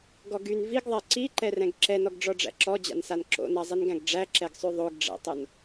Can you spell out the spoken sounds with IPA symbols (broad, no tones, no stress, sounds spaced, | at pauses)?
ɡ ɔ ɡ y n v i ɡ ðˤ æ ǀ i ǃ ɛ r ɛ̃ ɡ ǁ ɛ n ɔ ɡ ɖ͡ʐ ɔ ɖ͡ʐ æ̰ ǁ ɔ d͡ʑ a̰ n s a n ǁ o̰ n a zˤ i n ɡ æ̃ ɡ ɖ͡ʐ æ ǁ ɛ ɡ sˤ ʉ ðˤ o ɡ ɖ͡ʐ æ̰ tˤ o n